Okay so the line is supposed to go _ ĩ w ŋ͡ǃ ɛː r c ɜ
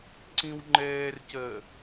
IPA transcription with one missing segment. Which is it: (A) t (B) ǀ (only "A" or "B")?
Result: B